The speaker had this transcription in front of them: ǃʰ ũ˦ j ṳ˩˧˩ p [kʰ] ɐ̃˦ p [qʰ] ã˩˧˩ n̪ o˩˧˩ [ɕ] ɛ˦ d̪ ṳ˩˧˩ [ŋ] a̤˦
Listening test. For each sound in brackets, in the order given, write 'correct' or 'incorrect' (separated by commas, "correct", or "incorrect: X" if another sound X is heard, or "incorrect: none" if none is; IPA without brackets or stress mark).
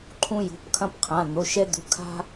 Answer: correct, correct, incorrect: ʃ, incorrect: kʰ